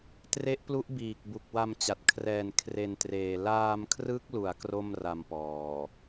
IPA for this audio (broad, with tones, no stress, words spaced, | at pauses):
tre˦˥ʔplu˦˥ʔ biː˨˩k̚ bu˨˩k̚wa˧mt͡ɕa˨˩t̚ kʰrɛː˨˩nkʰre˨˩n treː˨˩ laː˧mkʰrɯ˦˥k̚lu˩˦a̯ kro˥˩mra˧mpɔː˨˩